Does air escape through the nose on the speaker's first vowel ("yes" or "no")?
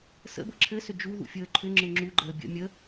no